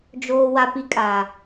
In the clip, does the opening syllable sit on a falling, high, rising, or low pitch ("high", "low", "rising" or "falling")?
high